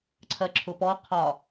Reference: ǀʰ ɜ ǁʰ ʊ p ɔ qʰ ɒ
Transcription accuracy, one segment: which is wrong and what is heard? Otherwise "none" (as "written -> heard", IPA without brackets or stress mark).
none